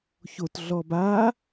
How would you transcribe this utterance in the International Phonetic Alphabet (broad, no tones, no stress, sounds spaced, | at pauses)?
ç o t ɮ ɔ b a